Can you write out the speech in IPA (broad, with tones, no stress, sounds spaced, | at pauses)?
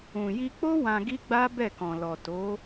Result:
ũ˨ j i˧ k͡p o˦ w ã˧ ɡ i˦ ɡ͡b a˦ b ɛ˦˨ k ɔ̃˨ l ɔ˨ t o˨˦